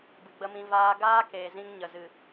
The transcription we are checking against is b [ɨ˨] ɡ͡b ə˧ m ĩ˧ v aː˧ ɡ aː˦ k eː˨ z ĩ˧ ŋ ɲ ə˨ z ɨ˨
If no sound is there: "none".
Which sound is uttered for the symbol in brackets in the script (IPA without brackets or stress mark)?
ɨ˨